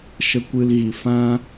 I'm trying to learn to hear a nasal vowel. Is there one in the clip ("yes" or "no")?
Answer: yes